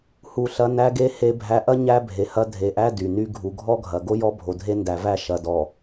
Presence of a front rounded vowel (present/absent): present